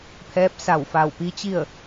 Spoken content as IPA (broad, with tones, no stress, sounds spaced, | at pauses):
pʰ ɛː˧˥ p̚ s a˧˩ w f a˧˩ w p i˧˥ t͡ɕ i˥˨ ə̯